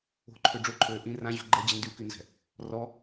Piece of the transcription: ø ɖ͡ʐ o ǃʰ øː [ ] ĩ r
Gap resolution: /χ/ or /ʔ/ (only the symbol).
ʔ